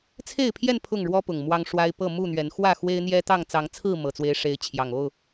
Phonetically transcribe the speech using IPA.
t͡sʰe˥˨ɪ̯pʰjɛ˥˨n pʰʊ˥˨ŋɻwɔ˦pʊ˨˩ŋ mwɑ˦ŋʂwa˦ɪ̯ pɤ˥˨ mu˥˨n̪ɥɛ˨˦n xwä˥˨ xwe˦ɪ̯n̪jɛ˦t̪ɑ˥˨ŋ t͡sɑ˨˦ŋt͡sʰɹ̩˥˨ mɤ˨˩t͡swe˨˦ɪ̯ʂe˨˦ɪ̯ t͡ɕʰjɑ˨˩ŋo˥˨ʊ̯

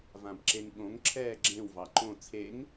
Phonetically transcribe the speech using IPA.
vãbǁeŋɠõŋ ǁʰɛːɡ͡ǁẽw vɑǃõ t͡sʰeŋ

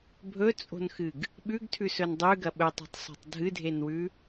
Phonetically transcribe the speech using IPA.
bʱɵt͡sʼo̤nxɨɡ | ɓʉɡtʰʉsɵn dˤʉɡɐ ɓɵtˤi̤tˤsˤo̤tˤ dʱɨdʱenwʉ

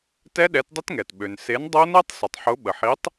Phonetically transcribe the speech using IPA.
tɛ˦˥ɗɛ˨˥tdˤə˦˥tŋɛ˩t ɓø˩n se˨˥ndˤo˦˥nɛ˦˥tˤ sə˩tˤħʊ˨˥ ɓə˩ħi˨˥tˤ

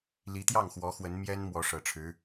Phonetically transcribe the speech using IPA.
li˧˥t̪jɑ˥˩ŋxwɔ˧˥ xwə˧˥n mjɛ˥n mwɔ˧˥ʂɤ˨˩ʈ͡ʂʰɻ̩˧˥

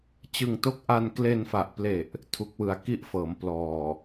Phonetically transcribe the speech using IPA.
t͡ɕɯ˧ŋto˥˩k̚ ʔa˧nkle˧nfa˨˩ʔple˨˩ʔ | tʰu˦˥k̚wɯ˧a̯ ki˥˩ʔfɤː˩˦m plɔː˨˩

